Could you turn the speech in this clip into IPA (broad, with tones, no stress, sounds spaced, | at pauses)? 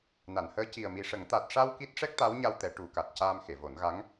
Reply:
n a˨˩˨ n h əː˧˥ c i˨˩ ə̯ m i˨˩ ʂ ə˨˩˦ ŋ t̪ a˨˩ t̚ ʂ a˧ w k i˦˥ t̚ ʂ ɛ˦˥ k̚ t̪ a˧˥ w ɲ a˧ w t̪ ɛ˨˩˦ ʈ u˨˩˦ k a˨˩ t̚ c aː˧ m x e˨˩˨ v o˨˩˦ n ɣ a˧˥ ŋ